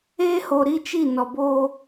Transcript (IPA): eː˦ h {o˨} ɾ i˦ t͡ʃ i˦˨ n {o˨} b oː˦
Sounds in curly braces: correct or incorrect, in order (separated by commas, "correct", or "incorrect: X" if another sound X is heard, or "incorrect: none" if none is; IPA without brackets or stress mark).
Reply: correct, incorrect: ɔ˨